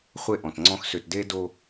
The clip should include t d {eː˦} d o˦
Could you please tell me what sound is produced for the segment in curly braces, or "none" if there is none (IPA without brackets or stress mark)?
eː˦